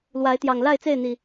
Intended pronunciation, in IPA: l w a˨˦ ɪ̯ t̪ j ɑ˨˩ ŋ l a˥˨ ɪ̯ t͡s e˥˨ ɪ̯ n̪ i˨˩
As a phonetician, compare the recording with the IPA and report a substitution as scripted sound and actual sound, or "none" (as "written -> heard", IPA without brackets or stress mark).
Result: none